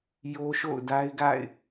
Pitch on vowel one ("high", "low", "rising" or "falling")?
high